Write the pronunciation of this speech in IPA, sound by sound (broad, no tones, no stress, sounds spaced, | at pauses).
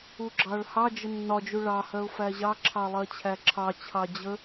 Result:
u ɡ͡ǁ ɑ ɭ h ɑ d͡ʒ ə nː ɒ d͡ʒ u ɭ ɑ h ɜ ʊ̯ f æ ʑ ɑ ǁʰ ɑ lˠ ɜ t͡ɕʰ æ ǁʰ ɑ t͡ɕʰ ɑ d͡ʑ ə